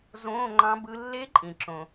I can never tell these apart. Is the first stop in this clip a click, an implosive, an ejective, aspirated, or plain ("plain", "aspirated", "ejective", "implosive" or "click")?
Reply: click